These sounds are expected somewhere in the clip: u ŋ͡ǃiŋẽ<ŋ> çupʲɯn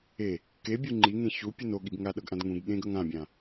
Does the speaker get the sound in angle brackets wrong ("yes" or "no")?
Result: yes